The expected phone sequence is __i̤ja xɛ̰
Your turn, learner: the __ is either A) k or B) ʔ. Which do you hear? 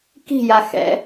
A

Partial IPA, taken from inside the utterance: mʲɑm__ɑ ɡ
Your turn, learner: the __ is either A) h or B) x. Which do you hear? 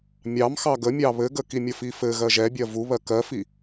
B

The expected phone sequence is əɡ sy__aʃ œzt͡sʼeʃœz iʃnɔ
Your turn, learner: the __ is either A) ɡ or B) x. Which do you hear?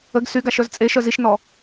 A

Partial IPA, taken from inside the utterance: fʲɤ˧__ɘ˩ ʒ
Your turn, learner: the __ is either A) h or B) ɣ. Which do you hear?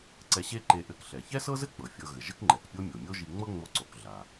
B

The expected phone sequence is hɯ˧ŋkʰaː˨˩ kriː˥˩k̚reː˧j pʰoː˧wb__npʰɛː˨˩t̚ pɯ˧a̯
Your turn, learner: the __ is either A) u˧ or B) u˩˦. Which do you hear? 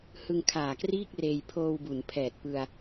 B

